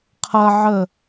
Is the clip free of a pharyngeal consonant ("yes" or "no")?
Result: no